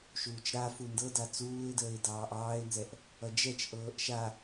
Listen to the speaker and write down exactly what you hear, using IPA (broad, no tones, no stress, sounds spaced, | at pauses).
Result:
ʃ uː t͡ʃ ɾ a f u n d ɤ d a t͡s uː ɪ̯ d əː ɪ̯ d ɑː ʔ ɑː ɪ̯ n z ɛ ʔ | ʌ d͡ʒ ɛ t͡ʃ ʔ ɤː ʔ ʃ a